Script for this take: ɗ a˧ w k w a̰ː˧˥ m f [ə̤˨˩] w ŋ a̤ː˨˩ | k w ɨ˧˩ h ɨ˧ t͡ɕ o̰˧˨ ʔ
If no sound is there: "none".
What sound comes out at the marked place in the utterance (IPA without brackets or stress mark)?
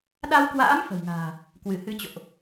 ə̤˨˩